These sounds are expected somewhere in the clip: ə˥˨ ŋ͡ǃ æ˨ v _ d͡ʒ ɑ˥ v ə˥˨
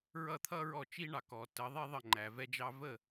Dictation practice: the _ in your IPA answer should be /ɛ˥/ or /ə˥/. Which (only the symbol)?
ɛ˥